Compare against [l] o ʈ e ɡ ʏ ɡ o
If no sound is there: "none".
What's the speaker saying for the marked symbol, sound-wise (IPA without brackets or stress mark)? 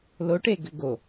l